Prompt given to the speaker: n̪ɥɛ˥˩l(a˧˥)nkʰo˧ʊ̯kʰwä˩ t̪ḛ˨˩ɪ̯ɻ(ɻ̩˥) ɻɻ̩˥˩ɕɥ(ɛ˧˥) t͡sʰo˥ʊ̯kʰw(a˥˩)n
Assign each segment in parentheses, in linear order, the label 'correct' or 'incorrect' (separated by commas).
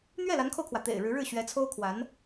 correct, incorrect, correct, incorrect